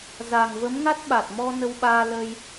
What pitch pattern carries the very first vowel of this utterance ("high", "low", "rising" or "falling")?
low